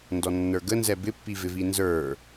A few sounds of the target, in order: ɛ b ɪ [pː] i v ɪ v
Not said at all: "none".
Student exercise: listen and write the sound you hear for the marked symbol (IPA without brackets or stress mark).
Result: pː